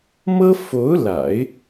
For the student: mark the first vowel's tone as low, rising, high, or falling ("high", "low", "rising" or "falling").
high